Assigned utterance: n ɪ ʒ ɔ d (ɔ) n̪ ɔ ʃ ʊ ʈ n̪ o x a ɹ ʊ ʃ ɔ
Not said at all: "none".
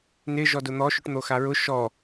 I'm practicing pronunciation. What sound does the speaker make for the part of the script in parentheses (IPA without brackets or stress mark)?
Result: ʊ